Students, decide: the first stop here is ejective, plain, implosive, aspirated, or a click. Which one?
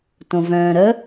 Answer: plain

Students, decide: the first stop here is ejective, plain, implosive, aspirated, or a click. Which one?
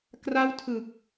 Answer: plain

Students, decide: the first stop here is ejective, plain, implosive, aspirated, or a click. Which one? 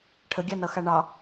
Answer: aspirated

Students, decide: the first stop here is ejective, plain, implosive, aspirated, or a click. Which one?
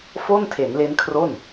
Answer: aspirated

